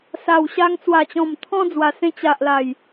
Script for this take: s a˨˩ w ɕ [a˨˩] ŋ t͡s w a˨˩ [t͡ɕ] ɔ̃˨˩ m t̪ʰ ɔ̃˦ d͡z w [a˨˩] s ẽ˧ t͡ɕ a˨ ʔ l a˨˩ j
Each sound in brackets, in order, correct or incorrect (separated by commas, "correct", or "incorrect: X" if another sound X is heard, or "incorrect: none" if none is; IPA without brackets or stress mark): incorrect: a˧, correct, correct